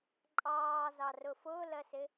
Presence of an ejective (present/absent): present